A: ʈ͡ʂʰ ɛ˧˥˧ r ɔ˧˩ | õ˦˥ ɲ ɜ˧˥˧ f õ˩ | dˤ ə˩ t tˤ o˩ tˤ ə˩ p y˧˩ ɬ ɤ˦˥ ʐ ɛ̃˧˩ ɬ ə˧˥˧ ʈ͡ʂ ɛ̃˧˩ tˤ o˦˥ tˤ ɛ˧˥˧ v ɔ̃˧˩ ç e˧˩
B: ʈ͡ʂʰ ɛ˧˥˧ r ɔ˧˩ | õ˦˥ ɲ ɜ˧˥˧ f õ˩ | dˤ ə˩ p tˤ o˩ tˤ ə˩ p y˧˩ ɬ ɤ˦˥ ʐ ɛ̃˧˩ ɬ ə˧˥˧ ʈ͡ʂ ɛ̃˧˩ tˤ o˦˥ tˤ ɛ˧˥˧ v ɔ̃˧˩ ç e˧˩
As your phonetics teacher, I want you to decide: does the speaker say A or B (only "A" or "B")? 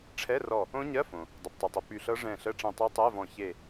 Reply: B